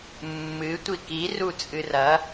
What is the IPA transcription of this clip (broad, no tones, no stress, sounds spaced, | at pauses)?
mː ɨ tʷ i k i r u t͡sʼ ɨ r ɐ